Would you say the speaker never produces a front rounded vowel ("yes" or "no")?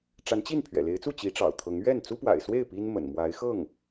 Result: yes